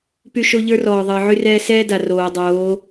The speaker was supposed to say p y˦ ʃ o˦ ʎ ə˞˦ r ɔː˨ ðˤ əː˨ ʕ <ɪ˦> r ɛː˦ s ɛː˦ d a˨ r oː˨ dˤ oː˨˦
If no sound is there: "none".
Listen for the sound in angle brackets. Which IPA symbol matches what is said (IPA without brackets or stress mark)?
y˦